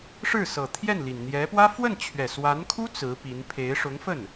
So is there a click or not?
no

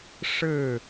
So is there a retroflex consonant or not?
yes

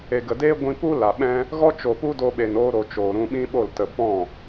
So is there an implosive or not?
yes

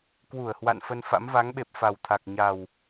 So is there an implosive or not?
yes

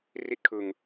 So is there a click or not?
no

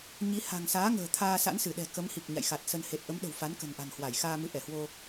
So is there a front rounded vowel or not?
no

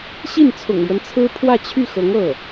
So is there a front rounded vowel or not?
yes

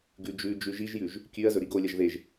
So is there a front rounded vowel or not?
no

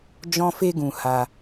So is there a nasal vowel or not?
yes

